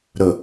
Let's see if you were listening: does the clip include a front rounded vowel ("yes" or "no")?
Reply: no